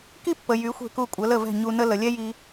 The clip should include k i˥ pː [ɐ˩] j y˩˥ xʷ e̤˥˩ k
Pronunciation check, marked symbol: incorrect: ə˩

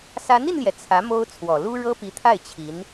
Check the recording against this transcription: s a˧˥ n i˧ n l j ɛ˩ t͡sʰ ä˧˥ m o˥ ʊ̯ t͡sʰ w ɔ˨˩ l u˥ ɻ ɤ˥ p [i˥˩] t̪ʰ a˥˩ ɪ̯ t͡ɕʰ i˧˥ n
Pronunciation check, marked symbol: incorrect: i˧˥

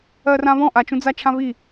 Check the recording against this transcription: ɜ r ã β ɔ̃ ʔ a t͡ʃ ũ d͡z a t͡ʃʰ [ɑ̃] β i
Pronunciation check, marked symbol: incorrect: ã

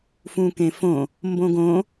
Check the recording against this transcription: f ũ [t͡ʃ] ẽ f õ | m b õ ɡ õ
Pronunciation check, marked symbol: incorrect: k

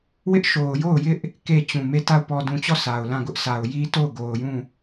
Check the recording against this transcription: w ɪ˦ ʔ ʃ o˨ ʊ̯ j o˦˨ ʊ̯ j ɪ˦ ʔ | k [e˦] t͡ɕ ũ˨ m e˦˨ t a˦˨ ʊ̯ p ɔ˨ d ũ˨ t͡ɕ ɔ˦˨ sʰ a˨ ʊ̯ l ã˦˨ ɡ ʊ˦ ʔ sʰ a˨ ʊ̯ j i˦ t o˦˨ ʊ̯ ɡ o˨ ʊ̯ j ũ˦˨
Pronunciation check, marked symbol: incorrect: e˦˨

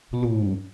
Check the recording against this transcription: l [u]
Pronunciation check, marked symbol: correct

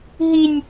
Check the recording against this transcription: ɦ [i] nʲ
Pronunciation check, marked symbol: correct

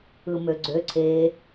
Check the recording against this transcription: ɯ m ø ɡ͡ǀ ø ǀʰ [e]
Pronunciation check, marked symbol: correct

